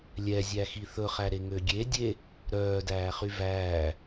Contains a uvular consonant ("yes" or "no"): yes